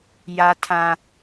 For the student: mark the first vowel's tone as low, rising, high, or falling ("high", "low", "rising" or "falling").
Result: high